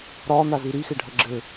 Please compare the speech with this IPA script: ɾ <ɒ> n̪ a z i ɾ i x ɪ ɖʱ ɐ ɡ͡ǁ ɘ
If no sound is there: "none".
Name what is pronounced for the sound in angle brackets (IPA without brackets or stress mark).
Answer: ɒ